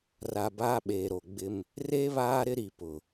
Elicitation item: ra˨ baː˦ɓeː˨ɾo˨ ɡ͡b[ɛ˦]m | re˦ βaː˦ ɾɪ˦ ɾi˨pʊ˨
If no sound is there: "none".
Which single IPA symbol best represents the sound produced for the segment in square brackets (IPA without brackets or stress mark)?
ɪ˦